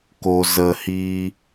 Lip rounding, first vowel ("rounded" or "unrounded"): rounded